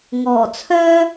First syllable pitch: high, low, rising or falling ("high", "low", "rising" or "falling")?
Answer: low